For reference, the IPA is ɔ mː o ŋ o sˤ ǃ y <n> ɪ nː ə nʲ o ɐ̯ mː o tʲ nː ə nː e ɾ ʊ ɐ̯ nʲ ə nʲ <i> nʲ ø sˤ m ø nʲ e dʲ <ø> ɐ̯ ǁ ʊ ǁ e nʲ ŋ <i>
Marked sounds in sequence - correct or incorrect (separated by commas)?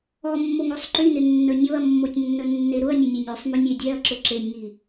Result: correct, incorrect, incorrect, correct